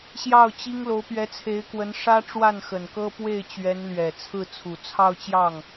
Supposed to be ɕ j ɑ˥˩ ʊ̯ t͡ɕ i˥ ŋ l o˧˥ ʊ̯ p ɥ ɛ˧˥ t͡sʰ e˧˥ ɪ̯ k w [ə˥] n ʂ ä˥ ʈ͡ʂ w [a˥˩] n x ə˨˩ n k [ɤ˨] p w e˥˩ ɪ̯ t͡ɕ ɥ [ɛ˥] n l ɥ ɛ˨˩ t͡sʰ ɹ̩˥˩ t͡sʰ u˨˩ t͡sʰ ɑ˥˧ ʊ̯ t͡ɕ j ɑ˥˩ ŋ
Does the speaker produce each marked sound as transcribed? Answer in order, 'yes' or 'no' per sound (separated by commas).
no, yes, no, no